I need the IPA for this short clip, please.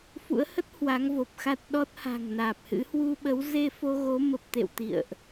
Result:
f ṵ˧˥ ə̯ h ə˦˥ t̚ h w a˨˦ ŋ v o˨˩ p̚ x a˦˥ t̚ ɗ ɔ˦˥ t̚ h a̤˨˩ ŋ n aː˨˩ p̚ h ɨ̰˧˥ h w u˧ ɓ ə˨˦ w z e˧ f o˧ ɣ o˨˦ m ə˨˩ p̚ t̪ ḛ˧˨ w t̪ ḭ˧˨ ə̯ ʔ

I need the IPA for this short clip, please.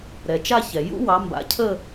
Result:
ɾ ɛ˩ t͡ʃ a˦˨ ç ɛ˩ j ṵ˥ w ɑ˩˧ m b a̰˩˥ cʰ ə˦˨

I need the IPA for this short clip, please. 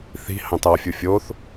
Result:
θ i̤ h ɑ̃ t ɑ fʲ u fʲ o θ

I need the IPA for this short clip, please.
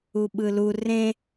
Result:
u ɓ ɯ l u r ẽ

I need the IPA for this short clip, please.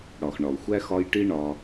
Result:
ɽ ɒ˨ x ɳ ɒ˨ ʊ̯ xʷ æ˦ x ɒ˦ j ʈ i˦ ɳ ɒ˧

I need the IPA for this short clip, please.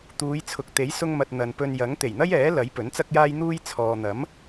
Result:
t̪ uː˨˧ j t͡sʰ ʊ˨ k̚ t̪ e˨˥ j s ʊ˧ ŋ m ɐ˨ t̚ n̪ ɐ˨ n p ɵ˧ n j ɐ˨˥ ŋ t̪ e˨˩ j n̪ ɐ˥ j ɛː˨˥ l ɐ˨˥ j p ɵ˨˥ n t͡s ɐ˥ k̚ j aː˥ j n̪ uː˥ j t͡sʰ ɔː˨ n̪ ɐ˨˥ m

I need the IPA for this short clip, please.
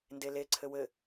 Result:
n d e l e ǀʰ ɘ w ɘ

